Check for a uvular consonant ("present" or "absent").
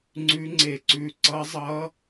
absent